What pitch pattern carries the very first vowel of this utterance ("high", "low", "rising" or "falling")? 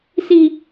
high